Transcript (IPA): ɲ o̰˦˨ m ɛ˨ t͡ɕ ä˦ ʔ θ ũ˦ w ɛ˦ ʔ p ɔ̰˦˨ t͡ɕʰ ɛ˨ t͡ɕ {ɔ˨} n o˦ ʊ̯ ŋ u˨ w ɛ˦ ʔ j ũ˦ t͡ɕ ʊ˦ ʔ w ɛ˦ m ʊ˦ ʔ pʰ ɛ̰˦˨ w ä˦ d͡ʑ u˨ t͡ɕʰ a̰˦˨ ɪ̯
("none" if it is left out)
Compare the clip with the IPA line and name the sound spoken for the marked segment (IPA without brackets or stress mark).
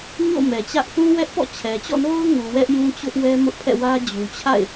ɔ̰˦˨